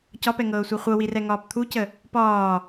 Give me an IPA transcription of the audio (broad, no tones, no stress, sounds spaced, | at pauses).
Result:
c ɒ p ɛ ŋ ɤː sʷ a χʷ ɤ w i r ɛ ŋ ɒː p t̪ʰ u c ə | p ɒː